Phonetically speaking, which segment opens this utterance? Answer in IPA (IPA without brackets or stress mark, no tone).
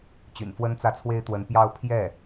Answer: t͡ɕ